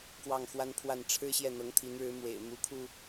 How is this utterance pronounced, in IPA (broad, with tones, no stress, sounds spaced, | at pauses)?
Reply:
k w ɑ˥˩ ŋ x w a˥ n pʰ w a˥˩ n ʈ͡ʂʰ ɻ̩˥ ɕ j ɛ˥˩ n̪ ɤ˧˥ ŋ t̪ʰ i˧˥ n ɻ ɻ̩˧˥ m w ḛ˨˩ ɪ̯ m u˧˥ kʰ u˧